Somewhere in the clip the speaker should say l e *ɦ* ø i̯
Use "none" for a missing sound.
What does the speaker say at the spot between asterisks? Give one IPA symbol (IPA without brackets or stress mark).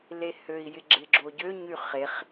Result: h